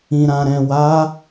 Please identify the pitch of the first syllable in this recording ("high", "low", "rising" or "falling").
low